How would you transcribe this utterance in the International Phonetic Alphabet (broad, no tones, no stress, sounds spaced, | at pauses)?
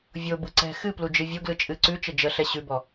vʲ o b ɯ ǀ ɛ̤ x ɨ p l u d͡ʒ ɨ vʲ o ɡ l ɯ t͡ʃʼ ɨ ǀ ʉ t͡ʃ ə d͡ʒ ə ɬ ɛ ɕ ʉ b ɔ